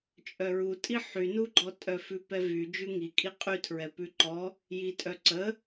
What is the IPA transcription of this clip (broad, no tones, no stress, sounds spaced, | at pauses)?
t͡ʃʼ œ ɹ u tʼ i ħ y n u ɡ͡ǃ ɔ tʼ œ f ʉ p ɛ v y d͡ʒ ʉ ŋ i kʼ i qʼ y tʰ ɹ ɛ p ʉ ǃ ɔ | j i tʼ œ ǀ ə